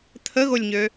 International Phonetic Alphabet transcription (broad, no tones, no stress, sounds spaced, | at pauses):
t̪ʰ ə ɣ o lʲ ɲ ø